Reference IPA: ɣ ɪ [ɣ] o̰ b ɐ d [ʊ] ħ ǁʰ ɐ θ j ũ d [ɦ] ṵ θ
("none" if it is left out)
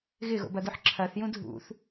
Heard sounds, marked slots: ɣ, ʊ, ɦ

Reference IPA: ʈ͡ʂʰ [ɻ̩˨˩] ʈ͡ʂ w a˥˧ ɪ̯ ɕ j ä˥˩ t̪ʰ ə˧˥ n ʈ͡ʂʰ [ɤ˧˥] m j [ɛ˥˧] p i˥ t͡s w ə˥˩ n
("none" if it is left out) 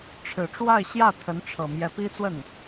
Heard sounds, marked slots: ɻ̩˨˩, ɤ˨˩, ɛ˧˥

